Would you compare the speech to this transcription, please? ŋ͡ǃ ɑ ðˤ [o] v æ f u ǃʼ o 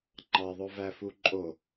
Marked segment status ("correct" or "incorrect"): correct